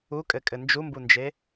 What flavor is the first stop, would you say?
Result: ejective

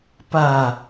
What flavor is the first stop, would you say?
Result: plain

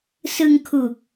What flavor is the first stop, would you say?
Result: aspirated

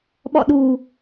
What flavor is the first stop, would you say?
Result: implosive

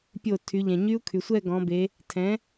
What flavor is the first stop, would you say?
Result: plain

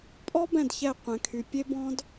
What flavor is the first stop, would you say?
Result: ejective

